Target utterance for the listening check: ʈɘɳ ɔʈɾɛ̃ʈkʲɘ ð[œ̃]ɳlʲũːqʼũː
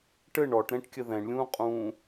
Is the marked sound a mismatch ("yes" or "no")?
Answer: yes